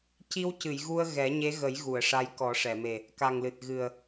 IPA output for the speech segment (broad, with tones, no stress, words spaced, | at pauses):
ci˧w cɨ˨˩˨jɣu˧ə̯ ɣɛ˨˩˦ɲe˧˥ɣə˨˩˦j ɣu˨˩˨ə̯ʂa˧jkɔ˨˩˦ ʂɛ˨˩˨me˨˩ | ka˨˩ŋlɨ˨˩t̚ ɣɨ˨˩ə̯